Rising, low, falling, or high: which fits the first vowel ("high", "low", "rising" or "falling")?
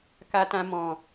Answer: low